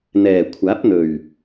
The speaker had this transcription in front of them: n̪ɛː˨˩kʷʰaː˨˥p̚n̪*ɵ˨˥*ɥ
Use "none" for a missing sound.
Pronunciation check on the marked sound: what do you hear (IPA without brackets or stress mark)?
ɵ˨˩